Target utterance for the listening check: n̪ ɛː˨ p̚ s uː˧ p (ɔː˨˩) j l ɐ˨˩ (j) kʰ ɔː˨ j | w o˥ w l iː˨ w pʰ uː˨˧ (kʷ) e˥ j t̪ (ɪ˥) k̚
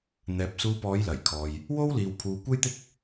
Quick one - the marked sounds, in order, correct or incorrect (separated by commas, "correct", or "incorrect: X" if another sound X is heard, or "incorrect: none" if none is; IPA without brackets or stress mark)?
incorrect: ɔː˨˧, correct, correct, correct